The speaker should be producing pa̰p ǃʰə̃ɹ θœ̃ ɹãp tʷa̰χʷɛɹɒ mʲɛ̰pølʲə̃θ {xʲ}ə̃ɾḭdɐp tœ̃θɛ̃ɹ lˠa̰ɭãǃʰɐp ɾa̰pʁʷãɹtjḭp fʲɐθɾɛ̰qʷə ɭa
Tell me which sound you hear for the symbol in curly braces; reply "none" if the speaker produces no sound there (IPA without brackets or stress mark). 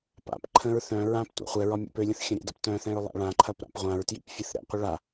xʲ